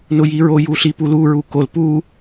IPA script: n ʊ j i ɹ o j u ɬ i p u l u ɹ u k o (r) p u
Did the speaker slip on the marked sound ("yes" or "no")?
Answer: yes